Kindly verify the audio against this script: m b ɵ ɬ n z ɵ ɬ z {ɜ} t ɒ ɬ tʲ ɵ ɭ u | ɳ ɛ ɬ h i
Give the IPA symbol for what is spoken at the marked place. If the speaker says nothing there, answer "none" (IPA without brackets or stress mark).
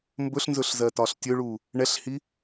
ɜ